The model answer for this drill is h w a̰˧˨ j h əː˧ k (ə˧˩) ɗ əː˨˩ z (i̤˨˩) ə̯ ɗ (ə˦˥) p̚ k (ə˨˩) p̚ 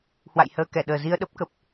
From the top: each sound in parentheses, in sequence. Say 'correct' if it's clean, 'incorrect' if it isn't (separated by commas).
incorrect, incorrect, correct, correct